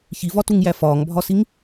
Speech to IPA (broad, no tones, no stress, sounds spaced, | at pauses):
ç i v ɒ t u ŋ j æ f ɒː ŋ bʱ ɒ s i ŋ